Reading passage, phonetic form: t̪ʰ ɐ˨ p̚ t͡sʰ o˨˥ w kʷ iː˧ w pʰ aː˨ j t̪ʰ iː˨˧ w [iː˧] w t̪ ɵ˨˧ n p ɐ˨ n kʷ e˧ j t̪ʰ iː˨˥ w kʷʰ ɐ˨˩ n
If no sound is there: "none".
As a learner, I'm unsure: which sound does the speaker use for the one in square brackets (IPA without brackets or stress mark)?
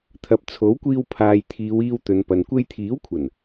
iː˧